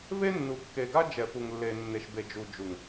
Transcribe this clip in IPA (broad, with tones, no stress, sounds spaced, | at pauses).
v e˦ nː u˨ kː e˨ ɡ a˦ d͡ʒ ɛ˨ f u˨ ŋ lː e˨ nː e˨ ʃ b e˨ d͡ʒ u˨ d͡ʒ u˨ ŋ